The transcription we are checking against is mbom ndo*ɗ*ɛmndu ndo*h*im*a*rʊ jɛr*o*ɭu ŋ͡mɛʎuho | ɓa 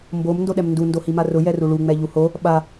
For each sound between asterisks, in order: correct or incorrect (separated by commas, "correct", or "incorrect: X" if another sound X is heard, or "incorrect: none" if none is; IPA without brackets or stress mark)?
correct, correct, correct, incorrect: u